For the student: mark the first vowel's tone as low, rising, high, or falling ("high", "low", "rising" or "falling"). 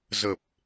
low